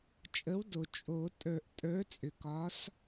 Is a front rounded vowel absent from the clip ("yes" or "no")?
no